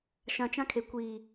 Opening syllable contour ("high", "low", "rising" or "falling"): low